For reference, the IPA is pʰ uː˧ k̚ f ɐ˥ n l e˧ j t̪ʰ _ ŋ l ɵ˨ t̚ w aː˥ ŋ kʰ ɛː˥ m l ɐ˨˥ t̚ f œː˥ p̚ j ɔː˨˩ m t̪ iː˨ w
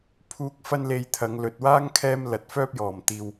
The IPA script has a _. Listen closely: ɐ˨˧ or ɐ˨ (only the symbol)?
ɐ˨˧